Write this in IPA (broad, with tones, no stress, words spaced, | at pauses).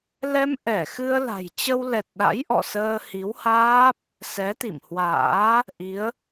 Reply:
lɛ˧m ʔɛ˧˩xɨ˧ə̯ la̤˨˩jt͡ɕə˧wlɛ˨˩t̚ ɗa̰˧˥j ʔɔ̰˧˨səː˧hi˨˦whaː˦˥p̚ | sɛ˨˦t̪ḭ˧˨mhwa̰ː˧˥ | ʔi˨˦ə̯